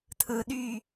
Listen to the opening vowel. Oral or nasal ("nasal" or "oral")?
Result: oral